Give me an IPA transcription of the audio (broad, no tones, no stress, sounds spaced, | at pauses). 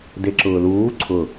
d e ǁ ʊː l uː ǀʰ ʊ